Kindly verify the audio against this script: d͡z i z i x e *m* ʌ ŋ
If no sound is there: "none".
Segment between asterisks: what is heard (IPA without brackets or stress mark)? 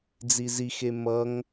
m